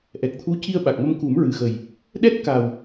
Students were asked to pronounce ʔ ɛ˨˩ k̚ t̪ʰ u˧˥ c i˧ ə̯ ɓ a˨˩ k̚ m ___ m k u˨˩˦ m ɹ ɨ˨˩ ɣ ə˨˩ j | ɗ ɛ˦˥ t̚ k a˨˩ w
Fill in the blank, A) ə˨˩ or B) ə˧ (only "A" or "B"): B